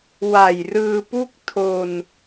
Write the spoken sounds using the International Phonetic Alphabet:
w a˨˩ j r ɯː˧ p u˥˩ k̚ tʰ o˧ n

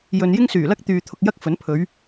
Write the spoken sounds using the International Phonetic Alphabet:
j ɵ˨ n j ɪ˥ ŋ s yː˨˩ l ɐ˥ k̚ t̪ yː˨ t̪ʰ ʊ˨ k̚ j ɐ˥ k̚ f ɵ˨˥ n pʰ ɵ˨˧ ɥ

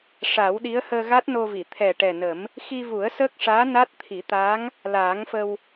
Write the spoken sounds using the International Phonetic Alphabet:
ʂ a˨˩˦ w ɗ i˧˥ ə̯ h əː˧ ɣ a˦˥ t̚ n o˧ v i˨˩˨ t̪ʰ ɛ˨˩ ʈ ɛ˨˩ n ə˨˩˦ m | x i˧ v u˨˩˦ ə̯ s əː˦˥ k̚ ʂ aː˧˥ n a˦˥ t̚ t̪ʰ i˨˩˦ t̪ aː˧˥ ŋ | l aː˨˩˦ ŋ f ə˧ w

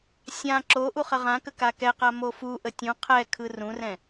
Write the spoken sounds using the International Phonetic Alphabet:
sʲ ã ǁ o ʔ u χ ə ʁ ã k ə k a k ɛ q a m o f u ʔ ə tʲ ũ qʰ ɛ kʰ ɯ r ũ r ɛ̃

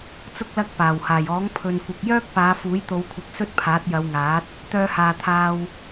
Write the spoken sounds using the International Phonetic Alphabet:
t͡s ʊ˧ k̚ l ɐ˧ k̚ p aː˨˩ w h aː˨˩ j ɔː˨˥ ŋ pʰ ɵ˨ n kʷ ɪ˨ k̚ j œː˥ k̚ p aː˨˧ f uː˨˥ j t̪ o˨˧ w kʷʰ ɪ˨˥ k̚ s ɵ˥ t̚ pʰ aː˨˥ t̚ j ɐ˨˧ w ŋ aː˨˥ t̚ | t̪ œː˧ h aː˨ t̪ʰ aː˧ w

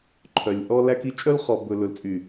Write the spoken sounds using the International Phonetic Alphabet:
ǃʰ œ˨ lʲ ʔ ɔ˦ l æ˦ k i˦ t͡ʃʼ œ˦ l χ ɔ˨ b ɵ˨ l ɵ˨ l t͡sʼ y˨

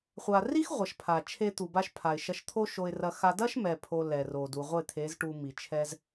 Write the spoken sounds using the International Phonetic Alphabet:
χʷ a˨ r i˦ x ʁʷ ɐ˨ ʃ pʰ a˨ t͡ʃʰ e˧ t̪ u˨ b a˧ ʃ pʰ a˨ ɪ̯ ʃ ɐ˧ ʃ t̪ʰ o˦ ʃ o˧ ɪ̯ r ɐ˧ x a˧ d ɐ˦ ʃ m ɛ˧ pʰ o˧ l ɛ˨ r o˨ d u˨ ʁʷ e˦˨ t̪ʰ e˨˦ z ʈ u˧ m i˨ t͡ʃʰ ɛ˦ z

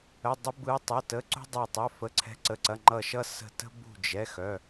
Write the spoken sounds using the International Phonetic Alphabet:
ə˩˧˩ dˤ ə˨˦ b ɯ˨˦ tˤ ə˩˧˩ t ə˩˧˩ ǀ ṳ˦ dˤ e˧˩ tˤ œ˩˧˩ f ə˩˧˩ ǀʰ ɛ̤˨˦ ǀ ə˩˧˩ ǀ ɐ˩˧˩ ŋ͡ǃ ʌ˧˩ ʃ ʌ˦ s ə̤˧˩ t ə̤˦ b ṳ˧˩ d͡ʒ ɛ˩˧˩ x œ˩˧˩

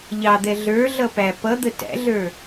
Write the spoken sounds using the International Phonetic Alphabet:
ʎ ɑ d̪ ɛ ɮ ə˞ ɮ ʌ p æ p ʌ d̪ ə t æ̰ ɮ ə˞

